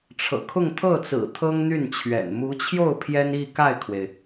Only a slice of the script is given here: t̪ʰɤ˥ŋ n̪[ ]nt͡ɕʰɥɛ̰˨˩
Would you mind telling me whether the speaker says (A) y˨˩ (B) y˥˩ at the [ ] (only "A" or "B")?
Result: B